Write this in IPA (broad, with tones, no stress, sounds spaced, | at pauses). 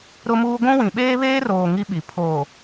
ɾ ʊ˦ m uː˦ ɡʷ ũ˦ w ĩ˨ ɓ eː˦ β eː˦ r oː˨ ŋ i˦ ɓ i˨ pʰ oː˨